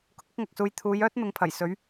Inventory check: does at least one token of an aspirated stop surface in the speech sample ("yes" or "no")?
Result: yes